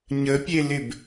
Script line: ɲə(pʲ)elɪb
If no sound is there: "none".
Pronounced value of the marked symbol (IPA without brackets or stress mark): pʲ